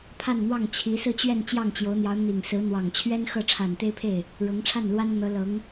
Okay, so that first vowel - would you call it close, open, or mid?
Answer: open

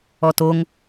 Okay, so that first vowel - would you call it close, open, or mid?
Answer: mid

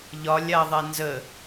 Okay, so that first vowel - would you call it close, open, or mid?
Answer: open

